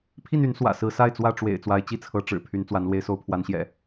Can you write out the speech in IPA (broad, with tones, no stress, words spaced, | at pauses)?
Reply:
pʰi˥˨n y˨˦n swä̰˨˩ sɹ̩˨˦sa˥˨ɪ̯t͡swä˥˨ ʈ͡ʂwḛ˨˩ɪ̯ t͡swa˨˦ɪ̯t͡ɕi˥˨t͡sʰɤ˨˦ ʈ͡ʂɻ̩˨˩ pʰy˨˦nt͡swa˨˦n lwe˨˦ɪ̯so˨˦ʊ̯pʰwa˨˦nɕjɛ̰˨˩